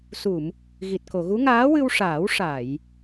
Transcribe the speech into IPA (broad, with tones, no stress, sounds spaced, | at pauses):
s u˨˩˨ m | ɣ i˨˩ t̚ k o˨˩˨ ɣ u˧˥ ŋ aː˧˥ w ɨ˧ w ʂ aː˨˩˦ w ʂ a˨˩˨ j